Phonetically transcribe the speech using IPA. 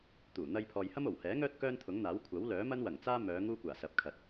t̪ uː˨˩ n̪ ɐ˧ j pʰ ɔː˨ j h ɐ˥ m o˨˩ w h ɛː˨˥ ŋ œː˧ t̚ k œː˥ n t̪ʰ ʊ˨˥ ŋ n̪ aː˨˥ w kʷʰ ɐ˨˥ w l œː˨˥ m ɐ˥ n w ɐ˨˩ ŋ t͡s aː˥ m œː˨˧ ŋ uː˥ kʷ aː˨˩ s ɐ˨˥ p̚ kʰ ɐ˨ t̚

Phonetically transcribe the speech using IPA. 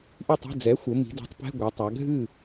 ʔ i˥˩ tˤ e̤˧˥˧ d͡z ɛ˩˥ xʷ ɘ˩˧ m i̤˩˧ d ɛ̤˩˥ tˤ p ɛ̤˧˥˧ ɡʷ ɐ˩˧ tˤ a˩˧ ɡʱ ɨ˥˩

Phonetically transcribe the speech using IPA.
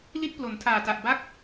l i˦˥ t̚ p l o˩˦ n tʰ aː˨˩ t a˨˩ ʔ b a˦˥ k̚

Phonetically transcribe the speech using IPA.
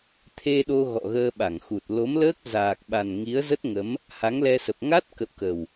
t̪ʰ e˧ ɗ o˧ ɣ ɔ̰˧˨ ɣ əː˧ ɓ a˧˩ ŋ x u˨˩ t̚ l o˨˦ m l əː˦˥ k̚ z aː˨˩ k̚ ɓ a˨˩ n ŋ i˨˦ ə̯ z ə˦˥ t̚ ŋ ə˨˦ m | h a˨˦ ŋ l ɛ˧ s ə˨˩ p̚ ŋ a˦˥ t̚ k ə̰˧˨ w k ə˨˩ w

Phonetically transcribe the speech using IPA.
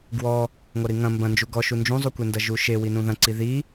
ɡ w ɔ | ŋʷ ɐ ɾ i ŋ ɐ̃ m b ɐ̃ n d͡ʒ u ɡ ɔ ʃ u n d͡ʒ ũ zˤ u kʷ e n d ɐ ʒ u ʃ e w i n ũ ð ɐ̃ ǀ i ð i

